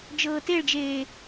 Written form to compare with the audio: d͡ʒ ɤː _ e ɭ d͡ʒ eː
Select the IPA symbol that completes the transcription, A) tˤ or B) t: B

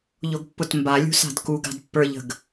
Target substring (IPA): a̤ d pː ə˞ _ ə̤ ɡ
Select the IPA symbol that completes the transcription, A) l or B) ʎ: B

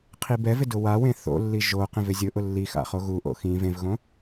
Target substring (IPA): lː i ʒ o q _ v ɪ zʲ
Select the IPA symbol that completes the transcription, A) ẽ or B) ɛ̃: A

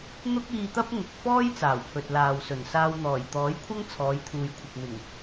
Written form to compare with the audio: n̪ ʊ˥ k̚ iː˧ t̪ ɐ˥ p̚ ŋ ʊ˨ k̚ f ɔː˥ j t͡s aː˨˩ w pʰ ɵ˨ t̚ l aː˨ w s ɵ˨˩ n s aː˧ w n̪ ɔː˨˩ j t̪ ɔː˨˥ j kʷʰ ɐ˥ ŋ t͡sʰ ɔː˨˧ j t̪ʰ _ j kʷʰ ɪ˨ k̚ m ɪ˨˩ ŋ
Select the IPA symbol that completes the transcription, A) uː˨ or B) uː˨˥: A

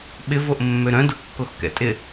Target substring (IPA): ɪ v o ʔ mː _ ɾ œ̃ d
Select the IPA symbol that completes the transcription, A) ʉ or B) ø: B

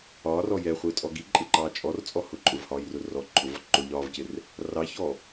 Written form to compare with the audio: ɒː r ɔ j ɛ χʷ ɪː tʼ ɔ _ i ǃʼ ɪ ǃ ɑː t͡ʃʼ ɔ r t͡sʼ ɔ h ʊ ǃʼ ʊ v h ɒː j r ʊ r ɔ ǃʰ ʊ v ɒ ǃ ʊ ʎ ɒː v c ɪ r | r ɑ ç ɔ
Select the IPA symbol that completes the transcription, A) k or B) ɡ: B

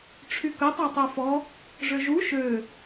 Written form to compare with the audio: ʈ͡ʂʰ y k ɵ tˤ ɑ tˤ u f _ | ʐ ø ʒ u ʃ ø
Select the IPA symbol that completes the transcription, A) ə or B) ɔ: B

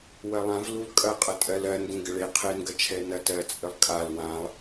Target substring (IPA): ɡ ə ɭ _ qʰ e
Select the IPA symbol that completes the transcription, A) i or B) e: B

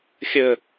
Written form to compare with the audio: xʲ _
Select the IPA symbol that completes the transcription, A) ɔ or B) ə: B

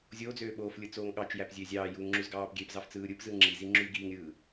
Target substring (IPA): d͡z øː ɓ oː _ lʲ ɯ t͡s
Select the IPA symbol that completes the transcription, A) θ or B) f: B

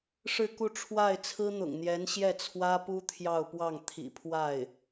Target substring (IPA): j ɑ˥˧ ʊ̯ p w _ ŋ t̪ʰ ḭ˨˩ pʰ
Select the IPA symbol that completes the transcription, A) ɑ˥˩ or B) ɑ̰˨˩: A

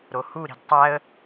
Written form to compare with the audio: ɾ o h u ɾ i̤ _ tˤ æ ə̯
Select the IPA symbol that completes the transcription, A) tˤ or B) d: B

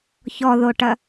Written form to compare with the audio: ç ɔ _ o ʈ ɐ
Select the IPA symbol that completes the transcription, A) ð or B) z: A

